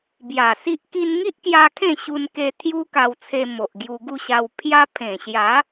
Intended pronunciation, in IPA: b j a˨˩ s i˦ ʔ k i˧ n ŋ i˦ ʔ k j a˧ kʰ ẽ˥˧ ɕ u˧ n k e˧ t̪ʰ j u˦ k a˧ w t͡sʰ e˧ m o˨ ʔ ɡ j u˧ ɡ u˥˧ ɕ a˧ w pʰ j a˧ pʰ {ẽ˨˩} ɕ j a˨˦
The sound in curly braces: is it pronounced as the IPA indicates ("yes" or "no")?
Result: yes